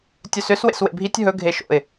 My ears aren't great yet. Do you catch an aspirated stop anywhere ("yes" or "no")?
no